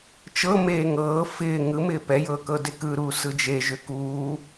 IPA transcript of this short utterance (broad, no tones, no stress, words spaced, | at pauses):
t͡ʃɤ meːŋɤː fɪː ŋɯmɪː pɛjɤːkɤ dekɯɾuː sɯd͡ʒe ʒʏkuː